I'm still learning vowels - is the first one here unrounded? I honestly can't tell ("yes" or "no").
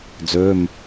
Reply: no